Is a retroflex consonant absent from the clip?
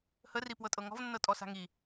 yes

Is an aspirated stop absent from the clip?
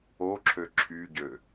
no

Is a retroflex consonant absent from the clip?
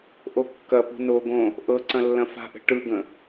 no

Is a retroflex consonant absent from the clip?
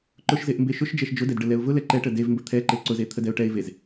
no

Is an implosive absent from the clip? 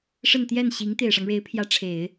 yes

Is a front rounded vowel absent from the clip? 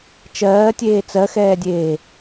yes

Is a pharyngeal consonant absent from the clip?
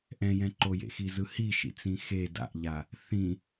yes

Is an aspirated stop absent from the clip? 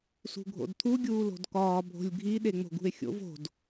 no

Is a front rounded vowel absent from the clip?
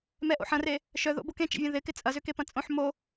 no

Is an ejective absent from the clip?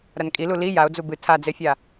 no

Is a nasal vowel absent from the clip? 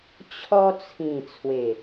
no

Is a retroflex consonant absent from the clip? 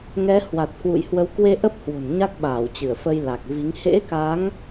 yes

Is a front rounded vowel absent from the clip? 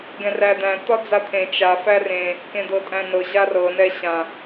yes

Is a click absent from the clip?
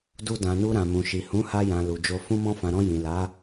yes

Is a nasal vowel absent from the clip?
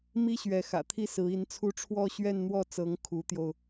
yes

